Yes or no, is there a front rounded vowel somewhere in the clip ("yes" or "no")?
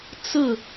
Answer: no